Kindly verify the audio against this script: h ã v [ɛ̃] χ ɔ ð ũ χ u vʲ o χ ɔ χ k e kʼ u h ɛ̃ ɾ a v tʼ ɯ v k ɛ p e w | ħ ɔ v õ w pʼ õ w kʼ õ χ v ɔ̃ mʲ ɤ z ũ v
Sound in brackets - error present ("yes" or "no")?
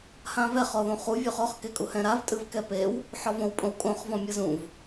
yes